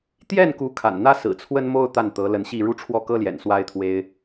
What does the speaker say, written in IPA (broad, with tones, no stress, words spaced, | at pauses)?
t̪jɛ˥˩nku˧˥ kʰa̰˨˩nn̪ä˥ sɹ̩˨˩t͡sʰwə˥nmo˥ʊ̯ t̪a˥˩nt̪ɤ˧˥lə˧˥nɕi˥˩ ɻu˥ʈ͡ʂʰwɔ˥˩kɤ˥ljɛ̰˨˩n swa˥ɪ̯t̪ʰwe˥ɪ̯